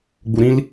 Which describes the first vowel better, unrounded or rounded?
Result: rounded